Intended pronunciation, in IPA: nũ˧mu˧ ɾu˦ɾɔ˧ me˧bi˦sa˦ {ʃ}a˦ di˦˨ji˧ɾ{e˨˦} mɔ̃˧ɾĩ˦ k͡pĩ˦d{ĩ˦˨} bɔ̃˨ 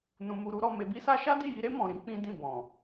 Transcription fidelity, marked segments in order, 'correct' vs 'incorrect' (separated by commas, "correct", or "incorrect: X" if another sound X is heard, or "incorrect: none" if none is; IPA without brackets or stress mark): correct, incorrect: e˦, correct